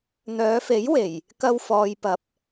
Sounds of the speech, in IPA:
n̪œː˨˧fe˨˥j we˨˩j | kɐ˧wfɔː˨jpɐ˨˥p̚

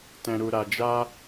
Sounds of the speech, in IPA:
tɛ̃˨ɾu˨ɾa˨d͡ʒa˧

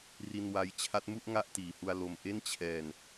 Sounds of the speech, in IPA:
ri˧nwa˦˥j t͡ɕʰa˦˥t̚mu˥˩ʔ ŋa˥˩ʔtiː˨˩hu˧a̯ lo˧m ʔe˥˩nt͡ɕʰɛː˧n

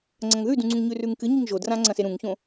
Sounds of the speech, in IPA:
ŋ͡ǀɐ̃ŋðʉdũŋ͡ǀũŋ ɲʉrʉŋkɨ ɲiŋʒodrã ŋ͡ǀɐ̃seɾũŋçõ

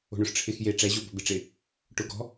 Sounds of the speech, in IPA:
o̤ɳʊʂʈ͡ʂʰɪx je ʈ͡ʂɛʑo bɔ̤bɪʈ͡ʂɪ | ʈʊ ɡɔ̤

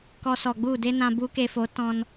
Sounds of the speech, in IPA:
kɔ˧sɔ˨ɡ͡bu˦˨de˦ nã˧bu˦ke˧fo˨˦ tɔ̃˧n

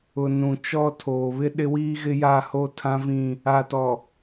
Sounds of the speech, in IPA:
ʊ˨ nũ˨t͡ʃɔ˦ tʰoː˨βɪ˦ ɗɪ˦wiː˦ ɣɪ˦ja˦˨hoː˦ tʰã˦vĩ˦˨ | a˨tɔ˨

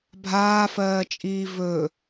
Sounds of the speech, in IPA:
bʱaːfɜːt͡ʃʼiː vɵ

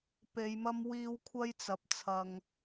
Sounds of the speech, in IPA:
pe˨˧jmɐ˥mwiː˥w kʷʰɐ˥jt͡sɐ˨˥p̚ t͡sʰɐ˧ŋ

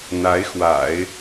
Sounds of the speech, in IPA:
n̪a˧˥ɪ̯xwa̰˨˩˦ɪ̯

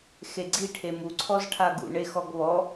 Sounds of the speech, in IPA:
xeɡ͡ǀiʈʰe muǀʰɔzʈʰa ɡṵɳexɔɡ βɔ

